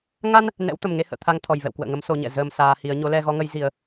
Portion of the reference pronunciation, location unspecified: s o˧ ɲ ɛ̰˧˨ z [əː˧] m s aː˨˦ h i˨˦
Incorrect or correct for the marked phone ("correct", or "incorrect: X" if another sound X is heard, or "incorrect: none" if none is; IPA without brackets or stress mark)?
incorrect: əː˨˩